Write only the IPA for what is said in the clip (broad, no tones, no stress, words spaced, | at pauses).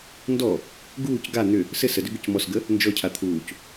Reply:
ndɔ | ɡuːc ɡa n̪ʏ | sɘ sədʏ ɡʏcmɔsɡə | nd͡ʒɔcʰa t̪ʰuːc